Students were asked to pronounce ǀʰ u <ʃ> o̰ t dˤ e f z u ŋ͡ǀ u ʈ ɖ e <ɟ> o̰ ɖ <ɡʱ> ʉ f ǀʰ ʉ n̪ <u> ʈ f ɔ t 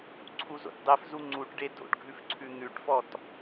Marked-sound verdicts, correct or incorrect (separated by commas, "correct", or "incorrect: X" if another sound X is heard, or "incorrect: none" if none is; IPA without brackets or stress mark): incorrect: z, incorrect: d, correct, incorrect: ʉ